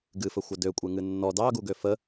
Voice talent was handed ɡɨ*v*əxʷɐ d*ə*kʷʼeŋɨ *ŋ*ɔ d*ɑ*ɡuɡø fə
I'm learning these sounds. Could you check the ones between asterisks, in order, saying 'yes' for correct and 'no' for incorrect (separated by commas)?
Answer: no, no, no, yes